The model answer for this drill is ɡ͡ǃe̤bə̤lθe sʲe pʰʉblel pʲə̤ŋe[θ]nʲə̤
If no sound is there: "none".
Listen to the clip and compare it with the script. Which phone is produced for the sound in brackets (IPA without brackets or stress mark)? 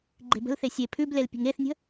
θ